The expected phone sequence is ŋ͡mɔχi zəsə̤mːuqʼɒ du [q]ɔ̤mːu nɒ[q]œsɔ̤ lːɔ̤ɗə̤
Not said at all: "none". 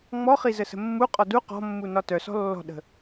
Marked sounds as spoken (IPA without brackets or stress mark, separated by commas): q, t